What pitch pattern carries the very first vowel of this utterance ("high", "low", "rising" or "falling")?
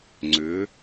rising